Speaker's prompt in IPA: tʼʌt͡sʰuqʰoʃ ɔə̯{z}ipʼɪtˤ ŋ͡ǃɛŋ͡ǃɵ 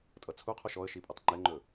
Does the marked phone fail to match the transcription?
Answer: yes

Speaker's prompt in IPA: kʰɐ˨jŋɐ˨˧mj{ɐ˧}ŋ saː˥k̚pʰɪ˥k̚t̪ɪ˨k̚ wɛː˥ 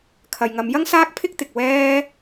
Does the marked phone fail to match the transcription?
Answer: yes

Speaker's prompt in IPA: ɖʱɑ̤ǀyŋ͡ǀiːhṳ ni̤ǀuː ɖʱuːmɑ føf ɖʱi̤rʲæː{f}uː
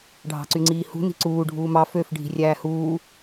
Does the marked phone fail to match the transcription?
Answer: yes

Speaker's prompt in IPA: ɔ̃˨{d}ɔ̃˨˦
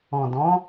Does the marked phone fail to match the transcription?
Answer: no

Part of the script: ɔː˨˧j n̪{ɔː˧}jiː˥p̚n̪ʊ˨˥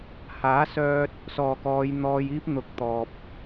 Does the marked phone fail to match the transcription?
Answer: no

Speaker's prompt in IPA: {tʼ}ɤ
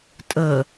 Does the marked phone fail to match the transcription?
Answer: no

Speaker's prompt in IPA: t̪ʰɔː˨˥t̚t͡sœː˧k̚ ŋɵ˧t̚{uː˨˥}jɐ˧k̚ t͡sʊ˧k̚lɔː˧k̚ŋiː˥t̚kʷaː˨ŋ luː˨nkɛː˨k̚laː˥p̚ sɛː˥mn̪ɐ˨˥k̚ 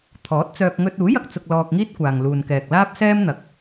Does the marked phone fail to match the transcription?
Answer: no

